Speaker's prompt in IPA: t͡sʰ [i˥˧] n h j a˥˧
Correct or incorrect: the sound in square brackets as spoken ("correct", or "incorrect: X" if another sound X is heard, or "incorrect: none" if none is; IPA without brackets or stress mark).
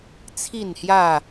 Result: correct